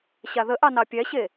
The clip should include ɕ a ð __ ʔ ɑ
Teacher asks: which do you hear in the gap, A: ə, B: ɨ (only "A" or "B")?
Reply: A